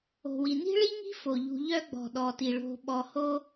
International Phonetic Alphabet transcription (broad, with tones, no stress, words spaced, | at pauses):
o̤˩wi˩ ni̤˥ɭi˥ŋi̤˥ fo˩ʎṳ˨ʎœ˦ ɡ͡bɔ̤˩ɗɔ˩ti˩ ɭo̤˨ ɓɔ˨ho˦